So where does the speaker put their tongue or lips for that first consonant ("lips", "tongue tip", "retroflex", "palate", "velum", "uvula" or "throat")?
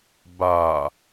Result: lips